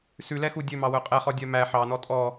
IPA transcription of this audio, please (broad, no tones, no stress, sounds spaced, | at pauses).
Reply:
s ʉ l ɛ x u dʲ ø m ɑ w œ qʼ ɛ χ ɔ dʲ œ m æ ħ ɑ n ɔ tʼ ɔ